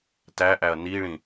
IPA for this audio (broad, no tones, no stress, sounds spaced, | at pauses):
t æ ʔ æ ɐ̯ n i ɭ ĩ